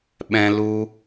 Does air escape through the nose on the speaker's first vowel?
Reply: yes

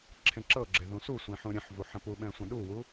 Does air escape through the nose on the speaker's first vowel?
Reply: yes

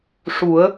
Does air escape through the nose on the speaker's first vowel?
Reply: no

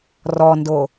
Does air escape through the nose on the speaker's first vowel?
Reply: no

